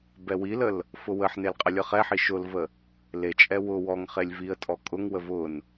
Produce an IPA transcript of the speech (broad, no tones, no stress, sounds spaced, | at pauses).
b ɛ w i l ə l | f ʊ w ə ħ n e l qʼ ə lʲ ɤ χ ɛ ħ i ʃ ʊ l v ə | l e t͡ʃʼ ɛ w ʊ w ɔ ŋ χ e lʲ v i ə̯ tʼ ɔ kʼ ʊ ŋ w ə v ʊ n